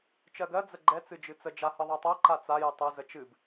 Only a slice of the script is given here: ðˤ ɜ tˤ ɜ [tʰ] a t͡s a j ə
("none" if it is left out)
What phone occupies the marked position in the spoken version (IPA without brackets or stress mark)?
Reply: ǃ